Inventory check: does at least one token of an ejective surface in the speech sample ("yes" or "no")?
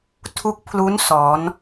no